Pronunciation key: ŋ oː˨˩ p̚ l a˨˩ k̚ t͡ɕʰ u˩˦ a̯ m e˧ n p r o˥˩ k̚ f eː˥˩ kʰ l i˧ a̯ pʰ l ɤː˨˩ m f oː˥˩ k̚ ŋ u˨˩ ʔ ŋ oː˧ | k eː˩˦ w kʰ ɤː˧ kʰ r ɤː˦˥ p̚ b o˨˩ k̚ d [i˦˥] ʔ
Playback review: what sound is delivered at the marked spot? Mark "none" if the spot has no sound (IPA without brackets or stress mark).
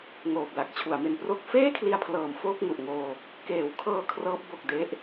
e˦˥